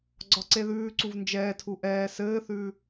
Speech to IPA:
ɡ͡ǀ ɒ ǀ e ð ʉː ǀ u v n d͡ʒ ɛː tʰ u ʔ ɛː s ɘː θ ʉː

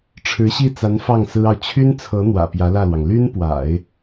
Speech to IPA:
ʈ͡ʂʰ ɻ̩˧˥ ɕ i˥˩ t͡s a˧˥ n f ɑ˥˩ ŋ s ɹ̩˥ ɑ˨ ʊ̯ t͡ɕʰ y˥ n t͡sʰ ɤ˧˥ n̪ w ä̰˨˩ p j ä˧˥ l ä˥˩ l w ɑ˩ ŋ l y˥ n p w a̰˨˩˦ ɪ̯

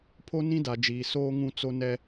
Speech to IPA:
pʰ o˦ n ĩ˦ d a˨ d͡ʒ iː˨ s oː˦ ŋ ũ˦ t͡s o˦ n ɛ˦

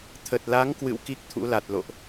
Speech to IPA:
t̪ʰ ə˨˩ t̚ l a˨˦ ŋ k w ɨ̰˧˨ w k i˦˥ k̚ t̪ʰ ṵ˧˥ l a˨˩ t̚ l o̰˧˨ ʔ

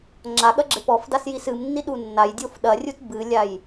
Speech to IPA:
ŋ͡ǁ a ɠ ɐ ɡ͡ǁ e p ɔ f d a s j i s ɨ m nː i ɗ u nː a j dʲ o f ɗ ɐ rʲ u t b ɨ lʲ a j

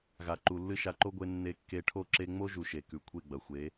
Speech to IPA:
ɣ a˨ ǃ u˨ lː ɨ˦ ʃ a˧ ǃ o˦ ɡʷ e˧ nː e˧ kː e˧ ʈʰ o˦ ǁ e˧ ŋ͡m o˦ ʒ u˨ ʃ e˨ k ʉ˨ kʷʰ e˦˨ ɡ͡b ɐ˨ xʷ e˨˦

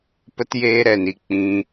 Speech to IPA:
p ə˦ t j eː˦ ɾ ɛ˧ n i˧ k͡p ĩ˦

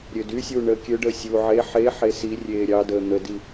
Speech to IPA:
ɾʲ ø d y sʲ uː ɳ əː kʲ ø ɖ əː sʲ u ʕ e ħ e ħ e s i rʲ eː ɾʲ ɑ d əː n̪ ə d i

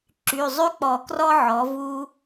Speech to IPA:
ǁ y˩˧˩ zˤ y˥ k͡p ɔ˨˩˦ k r ɔ˥ ʕ ɔ˩˥ v u˥

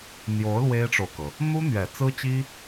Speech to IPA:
n̪ j o˧˥ ʊ̯ l w e˥ ɪ̯ ʈ͡ʂ o˨ ʊ̯ k ɤ˩ | n̪ u˥ n̪ ɥ ɛ˨˩ t͡s ɹ̩˥ t͡ɕ i˥

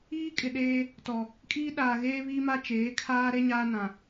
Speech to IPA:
iː˦ kʼ ɪ˨ ɗ eː˦ | t ɔ˨ | kʼ iː˦ ɗ aː˨ ɣ eː˦ β iː˦ m a˦ t͡ʃ eː˨˦ kʰ aː˦ ɾ e˦ ɲ aː˦ n ã˨

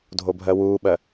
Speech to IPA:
dʱ o bʱ ɜ w uː ɓ ɜ

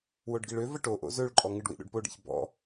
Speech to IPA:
w o ɖ ɡ i ɭ ø v ɐ ʈ o ʔ o̰ z ø ɭ ǃʼ ɔ ŋ ɨ ɖ w ḭ ɗ o̰ ɖ p o ɖ ḭ ç b ɔ̰

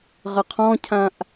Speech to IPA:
ʁ ə qʰ ɔ̃ cʰ ã ʔ

